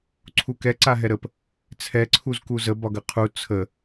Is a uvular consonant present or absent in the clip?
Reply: present